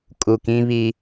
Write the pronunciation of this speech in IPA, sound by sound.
kʼu˨kĩ˦βi˦

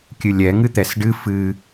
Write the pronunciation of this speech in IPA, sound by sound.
kʲɨlʲɛ ŋɨt̪ɛsɖɨ fɨ

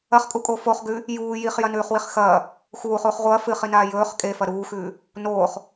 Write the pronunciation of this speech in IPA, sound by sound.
ɐχkʼukʼo foχɡʉ | juː jiχjɐnʉːχwiχ xɐː | xuːχuːχ ʁʷɐː fɨχinaː jɵːχ kʼefɐ ɾuːxʉː | noːχ

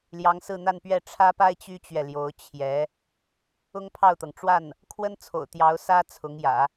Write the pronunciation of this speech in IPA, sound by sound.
ljɑ˧˥ŋsɹ̩˥˧n̪a˥˧npɥɛ˥˩ ʈ͡ʂʰä˥pa˥ɪ̯ t͡ɕy˥t͡ɕɥɛ˨ljo˧˥ʊ̯ t͡ɕʰjɛ˧˥ | ʊ˥ŋpʰɑ˥˩ʊ̯t̪ɤ˩ŋ ʈ͡ʂwa˥˩n | kʰwə˥nt͡sʰo̰˨˩ʊ̯t̪jɑ˧˥ʊ̯ sä˥ t͡sʰʊ˧˥ŋjä̰˨˩˦

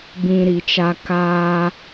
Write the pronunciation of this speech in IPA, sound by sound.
bĩ˧ɾi˨t͡ʃa˧ kaː˧

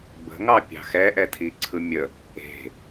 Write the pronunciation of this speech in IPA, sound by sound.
bə̤ ŋɑpʲɑ̤xɛ ʔɛtʰiǀʰɯmʲə | e̤

